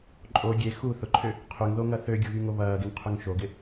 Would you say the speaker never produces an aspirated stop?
no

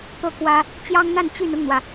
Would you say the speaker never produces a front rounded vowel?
no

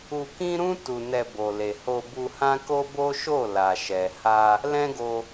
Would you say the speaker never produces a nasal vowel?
no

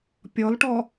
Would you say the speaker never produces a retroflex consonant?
no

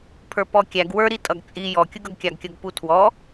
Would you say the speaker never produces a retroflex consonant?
yes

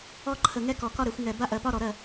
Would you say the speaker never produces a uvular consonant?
yes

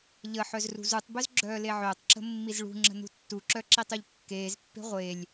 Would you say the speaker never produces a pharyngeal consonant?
no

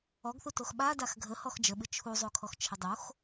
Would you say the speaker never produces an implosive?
no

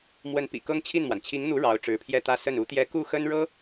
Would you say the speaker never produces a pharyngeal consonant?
yes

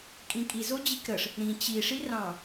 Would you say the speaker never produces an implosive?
yes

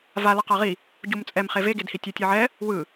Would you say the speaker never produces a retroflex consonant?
yes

